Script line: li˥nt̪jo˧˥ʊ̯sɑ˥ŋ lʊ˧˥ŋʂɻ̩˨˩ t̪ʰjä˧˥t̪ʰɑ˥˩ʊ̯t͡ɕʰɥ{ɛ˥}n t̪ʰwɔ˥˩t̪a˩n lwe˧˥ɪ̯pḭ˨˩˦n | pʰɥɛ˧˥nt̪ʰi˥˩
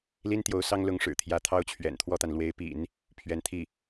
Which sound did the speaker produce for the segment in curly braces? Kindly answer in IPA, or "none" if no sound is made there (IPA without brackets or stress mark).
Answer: ɛ̰˨˩